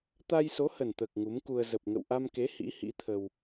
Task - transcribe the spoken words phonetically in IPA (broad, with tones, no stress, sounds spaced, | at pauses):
t̪ a˧ j s o˨˦ h ə˨˩ n t̪ əː˨˩ k̚ ŋ u˨˦ m k u˧ ə̯ z ə˨˩ p̚ ŋ ə̰˧˨ w ʔ a˧ m k e˨˦ h ḭ˧˥ h ḭ˧˥ t̪ʰ ə˧ w